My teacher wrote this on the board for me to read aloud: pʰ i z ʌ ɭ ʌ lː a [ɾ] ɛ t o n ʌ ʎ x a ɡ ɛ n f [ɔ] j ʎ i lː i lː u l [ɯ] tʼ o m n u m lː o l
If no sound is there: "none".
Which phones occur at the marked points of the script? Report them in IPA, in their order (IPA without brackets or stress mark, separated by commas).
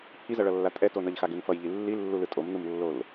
tʼ, ʌ, ɯ